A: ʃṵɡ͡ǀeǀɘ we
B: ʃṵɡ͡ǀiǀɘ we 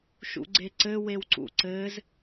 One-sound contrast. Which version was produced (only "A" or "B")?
A